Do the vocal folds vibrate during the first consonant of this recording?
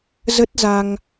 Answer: yes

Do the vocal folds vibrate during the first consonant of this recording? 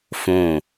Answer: no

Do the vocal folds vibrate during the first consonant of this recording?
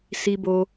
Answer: no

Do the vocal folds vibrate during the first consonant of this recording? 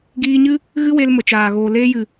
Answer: yes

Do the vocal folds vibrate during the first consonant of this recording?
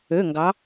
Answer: yes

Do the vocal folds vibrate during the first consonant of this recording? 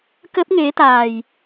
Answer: no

